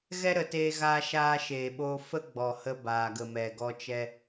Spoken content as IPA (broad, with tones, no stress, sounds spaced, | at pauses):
ɣ ɛ˦ ɾ ə˨ t eː˧ ɣ aː˧ ʃ aː˧ ʃ eː˨ ɓ oː˧ f ə˦ ɡ͡b ɔ˨ h ə˧ b aː˨ ɡ ə˨ m ɛ˨ ɡ ɔ˧ t͡ʃ ɛ˧